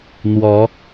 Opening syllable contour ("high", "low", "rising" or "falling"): rising